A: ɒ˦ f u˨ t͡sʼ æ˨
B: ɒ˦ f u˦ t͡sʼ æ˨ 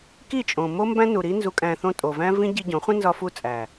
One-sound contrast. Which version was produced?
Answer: B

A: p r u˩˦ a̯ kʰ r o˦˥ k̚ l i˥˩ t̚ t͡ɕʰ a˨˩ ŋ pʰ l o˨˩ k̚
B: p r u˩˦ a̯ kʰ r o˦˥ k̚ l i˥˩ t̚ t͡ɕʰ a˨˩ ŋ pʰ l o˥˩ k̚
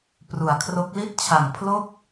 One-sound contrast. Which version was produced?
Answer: B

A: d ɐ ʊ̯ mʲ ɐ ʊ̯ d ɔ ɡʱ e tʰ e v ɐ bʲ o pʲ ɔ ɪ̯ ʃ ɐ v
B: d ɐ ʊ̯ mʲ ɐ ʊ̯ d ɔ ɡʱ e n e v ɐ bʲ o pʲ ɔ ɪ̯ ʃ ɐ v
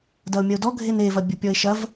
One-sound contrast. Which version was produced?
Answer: B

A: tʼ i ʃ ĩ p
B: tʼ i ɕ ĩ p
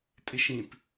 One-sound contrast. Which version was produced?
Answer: A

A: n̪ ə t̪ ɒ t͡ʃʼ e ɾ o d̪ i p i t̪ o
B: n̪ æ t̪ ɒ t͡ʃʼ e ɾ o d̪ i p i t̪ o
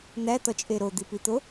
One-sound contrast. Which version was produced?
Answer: B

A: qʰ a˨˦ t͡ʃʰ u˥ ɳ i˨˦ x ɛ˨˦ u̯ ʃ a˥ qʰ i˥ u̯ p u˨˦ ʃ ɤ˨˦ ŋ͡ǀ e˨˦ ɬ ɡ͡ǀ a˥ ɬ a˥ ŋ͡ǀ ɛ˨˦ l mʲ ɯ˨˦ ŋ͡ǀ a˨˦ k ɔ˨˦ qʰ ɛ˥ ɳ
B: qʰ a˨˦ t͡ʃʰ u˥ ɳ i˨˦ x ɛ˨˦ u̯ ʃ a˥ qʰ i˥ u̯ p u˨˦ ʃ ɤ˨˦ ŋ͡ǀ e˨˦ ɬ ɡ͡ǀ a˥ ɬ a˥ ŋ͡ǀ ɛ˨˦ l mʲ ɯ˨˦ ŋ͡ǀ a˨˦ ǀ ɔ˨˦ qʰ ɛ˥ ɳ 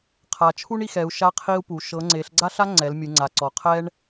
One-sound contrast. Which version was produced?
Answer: B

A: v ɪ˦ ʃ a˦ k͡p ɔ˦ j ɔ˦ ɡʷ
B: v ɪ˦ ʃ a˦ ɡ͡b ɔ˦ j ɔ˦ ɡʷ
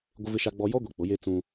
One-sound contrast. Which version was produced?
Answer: B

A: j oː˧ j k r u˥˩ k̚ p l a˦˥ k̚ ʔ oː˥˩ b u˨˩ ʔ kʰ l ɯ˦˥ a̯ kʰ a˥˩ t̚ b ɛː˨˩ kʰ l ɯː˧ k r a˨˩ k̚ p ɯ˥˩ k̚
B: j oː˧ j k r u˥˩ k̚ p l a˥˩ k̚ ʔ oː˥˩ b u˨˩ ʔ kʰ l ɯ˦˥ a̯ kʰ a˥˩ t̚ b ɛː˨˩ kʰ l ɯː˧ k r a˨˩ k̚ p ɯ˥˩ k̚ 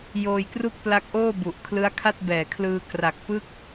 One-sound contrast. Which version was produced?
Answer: A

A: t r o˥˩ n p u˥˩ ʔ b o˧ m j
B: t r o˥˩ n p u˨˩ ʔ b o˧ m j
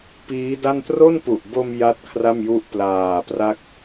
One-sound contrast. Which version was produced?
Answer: B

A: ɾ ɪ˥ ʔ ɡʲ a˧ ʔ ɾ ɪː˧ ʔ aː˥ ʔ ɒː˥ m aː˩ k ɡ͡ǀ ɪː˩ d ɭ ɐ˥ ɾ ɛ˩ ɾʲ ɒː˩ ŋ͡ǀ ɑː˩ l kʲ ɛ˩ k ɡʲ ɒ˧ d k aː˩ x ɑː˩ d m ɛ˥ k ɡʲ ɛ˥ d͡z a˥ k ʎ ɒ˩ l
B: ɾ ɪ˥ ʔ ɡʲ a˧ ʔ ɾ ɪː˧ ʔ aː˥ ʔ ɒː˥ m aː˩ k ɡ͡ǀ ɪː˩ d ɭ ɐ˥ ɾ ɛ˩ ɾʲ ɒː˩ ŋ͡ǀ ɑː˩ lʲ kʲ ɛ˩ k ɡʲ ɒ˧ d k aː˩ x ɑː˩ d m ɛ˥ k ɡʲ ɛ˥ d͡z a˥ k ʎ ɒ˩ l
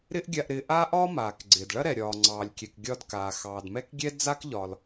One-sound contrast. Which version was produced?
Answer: B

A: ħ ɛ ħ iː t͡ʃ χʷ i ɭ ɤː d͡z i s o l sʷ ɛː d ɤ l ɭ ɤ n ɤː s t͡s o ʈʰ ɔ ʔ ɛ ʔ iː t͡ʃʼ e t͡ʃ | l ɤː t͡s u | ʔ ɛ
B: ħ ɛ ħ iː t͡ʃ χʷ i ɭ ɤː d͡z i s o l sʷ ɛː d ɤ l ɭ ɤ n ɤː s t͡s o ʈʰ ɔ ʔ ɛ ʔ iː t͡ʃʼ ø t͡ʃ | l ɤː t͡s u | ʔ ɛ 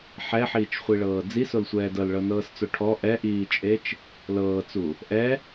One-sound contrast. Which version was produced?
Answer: A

